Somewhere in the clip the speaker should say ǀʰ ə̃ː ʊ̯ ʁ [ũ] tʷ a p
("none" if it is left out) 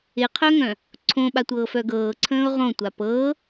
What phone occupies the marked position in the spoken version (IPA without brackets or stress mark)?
õ